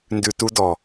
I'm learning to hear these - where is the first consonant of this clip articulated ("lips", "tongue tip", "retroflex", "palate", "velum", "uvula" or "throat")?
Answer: tongue tip